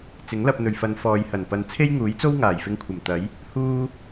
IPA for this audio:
t͡sɪ˨˥ŋlɐ˧p̚n̪ɵ˨ɥfɐ˨˧n fɔː˨jhɐ˨˩n pɐ˨nt͡sʰe˥jŋuː˨˥jt͡so˥w ŋaː˨˩jfɪ˧ŋkʷʰɐ˨˩m t̪ɐ˨˥j | huː˥

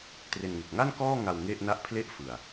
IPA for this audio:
tre˧nŋe˨˩k̚ ŋa˥˩nkɔː˥˩ ŋa˧w ŋe˥˩ʔna˥˩ʔ pʰle˥˩ʔfɯ˨˩a̯

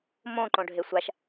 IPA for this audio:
mõ ǃõɖʱesʷaʃ

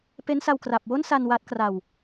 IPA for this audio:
pe˦˥nsa˧w kra˨˩p̚wo˥˩nsa˧n wa˦˥t̚kra˧w

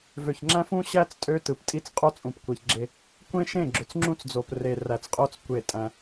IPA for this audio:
vø˨çŋ͡ǁæ̃˦fũ˦ɕæ˦t͡s tʼø˦ tɯ˨ptʼi˦t͡s qʼo˦t͡sʼũ˨pkʷe˨çɡ͡ǁe˦ | kʷẽ˦ʃẽ˦˨ ɡ͡ǁø˨t͡sŋ͡ǁũ˦t͡sd͡zo˨p re˨ ræ˨t͡sqʼo˦t͡s kʷe˦˨tʼæ̃˦

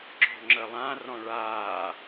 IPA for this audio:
ǁɔ̤ŋ͡ǁəlˠã rɔ̃ɭaː

